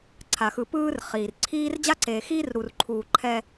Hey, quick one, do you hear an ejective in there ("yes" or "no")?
no